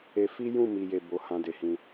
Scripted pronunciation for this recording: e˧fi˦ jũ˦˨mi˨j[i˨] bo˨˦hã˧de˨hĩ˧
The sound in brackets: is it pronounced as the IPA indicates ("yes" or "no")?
no